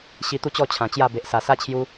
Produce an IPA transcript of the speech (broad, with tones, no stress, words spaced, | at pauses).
ɕi˧t̪u˥˧t͡ɕɔ˥˧ t͡ɕʰã˨˩t͡ɕja˥˧ be˨ʔsa˨˩sa˦ t͡ɕʰju˧